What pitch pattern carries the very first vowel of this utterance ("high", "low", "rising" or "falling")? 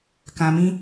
low